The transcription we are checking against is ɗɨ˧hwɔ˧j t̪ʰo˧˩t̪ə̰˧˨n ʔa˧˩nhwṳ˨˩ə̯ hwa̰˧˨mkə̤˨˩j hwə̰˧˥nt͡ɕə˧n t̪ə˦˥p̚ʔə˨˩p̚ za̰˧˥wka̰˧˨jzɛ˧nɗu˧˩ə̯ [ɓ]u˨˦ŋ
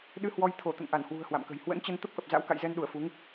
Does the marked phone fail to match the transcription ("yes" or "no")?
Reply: yes